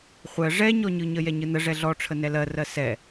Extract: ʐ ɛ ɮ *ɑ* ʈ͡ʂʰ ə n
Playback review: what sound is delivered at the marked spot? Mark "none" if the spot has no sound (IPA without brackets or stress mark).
ɔ